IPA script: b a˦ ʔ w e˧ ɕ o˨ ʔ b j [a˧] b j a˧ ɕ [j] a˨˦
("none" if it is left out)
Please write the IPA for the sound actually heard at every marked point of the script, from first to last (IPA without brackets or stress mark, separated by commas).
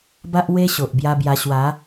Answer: a˧, w